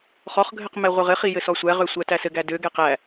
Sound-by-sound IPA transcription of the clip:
χɔχɡʱɘq mɛʁʷɘʁɘχi jɘsɔsʷæʁø sʷætæsɘɡæ døɡɛ qæ

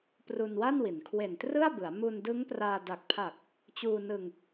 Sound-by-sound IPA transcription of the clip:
pru˧nwa˥˩nwi˩˦n kʰwe˨˩ntrɯ˥˩a̯bɯ˩˦a̯ mu˧ndɯ˦˥ŋpraː˧ da˨˩k̚pʰa˨˩k̚ | t͡ɕuː˧nɯ˧ŋ

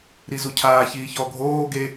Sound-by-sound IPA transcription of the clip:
ɾizucʰaː çiːçɔ ɡʱoː ɡe

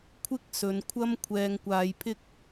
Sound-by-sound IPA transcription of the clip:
kʷʰɪ˥k̚sɵ˨˧nkʷʰɐ˥m kʷʰɛː˧ŋkʷaː˧jpʰɪ˥k̚

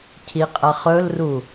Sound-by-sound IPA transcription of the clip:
cʰiqʼɐχɵlru

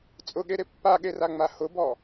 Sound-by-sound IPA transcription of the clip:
t͡sʼʊɠeɾe pːaɠeraŋ͡ma hʊbɔ

